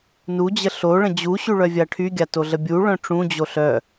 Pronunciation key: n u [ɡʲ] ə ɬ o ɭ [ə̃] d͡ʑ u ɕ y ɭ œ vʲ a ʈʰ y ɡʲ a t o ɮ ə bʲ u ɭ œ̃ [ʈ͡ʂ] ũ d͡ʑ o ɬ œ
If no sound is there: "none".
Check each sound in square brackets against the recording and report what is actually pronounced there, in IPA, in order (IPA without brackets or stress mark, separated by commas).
d͡ʑ, ə̃, ʈ͡ʂ